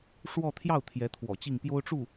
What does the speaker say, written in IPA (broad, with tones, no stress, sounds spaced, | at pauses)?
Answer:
ʂ w ɔ˥˧ t̪ʰ j ɑ˥˩ ʊ̯ t̪ʰ j ɛ˧˥ t̪ʰ w ɔ̰˨˩ t͡ɕ i˥˩ ŋ p j o˥ ʊ̯ ʈ͡ʂ u˥˩